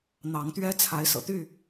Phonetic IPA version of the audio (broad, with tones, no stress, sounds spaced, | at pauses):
n̪ ɑ˨˦ ŋ t̪ ɥ ɛ˦ t͡sʰ a˨˦ ɪ̯ s ɤ̰˨˩ t̪ y˥˨